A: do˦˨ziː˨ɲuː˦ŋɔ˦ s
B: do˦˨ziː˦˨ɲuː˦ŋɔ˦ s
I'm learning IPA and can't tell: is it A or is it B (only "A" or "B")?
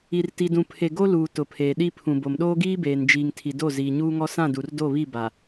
A